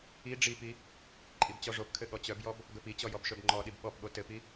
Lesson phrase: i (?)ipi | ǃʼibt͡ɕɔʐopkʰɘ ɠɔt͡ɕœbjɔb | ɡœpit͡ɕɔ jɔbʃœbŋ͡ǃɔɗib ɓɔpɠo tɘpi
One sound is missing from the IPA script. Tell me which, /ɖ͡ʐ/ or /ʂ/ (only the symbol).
ɖ͡ʐ